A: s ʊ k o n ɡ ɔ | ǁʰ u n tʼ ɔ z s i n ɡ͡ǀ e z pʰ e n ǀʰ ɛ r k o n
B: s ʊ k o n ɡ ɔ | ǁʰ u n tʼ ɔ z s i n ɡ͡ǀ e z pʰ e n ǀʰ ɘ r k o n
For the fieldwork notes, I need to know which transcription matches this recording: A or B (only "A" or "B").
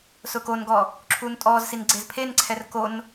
A